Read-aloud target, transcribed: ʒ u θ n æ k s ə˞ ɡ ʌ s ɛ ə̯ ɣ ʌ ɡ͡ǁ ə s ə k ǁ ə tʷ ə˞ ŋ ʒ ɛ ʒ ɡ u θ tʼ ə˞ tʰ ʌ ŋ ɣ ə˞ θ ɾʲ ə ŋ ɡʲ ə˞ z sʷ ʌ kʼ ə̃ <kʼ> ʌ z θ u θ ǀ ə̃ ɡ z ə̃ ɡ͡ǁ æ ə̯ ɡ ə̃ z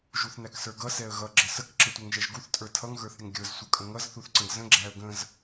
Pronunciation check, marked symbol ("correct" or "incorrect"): incorrect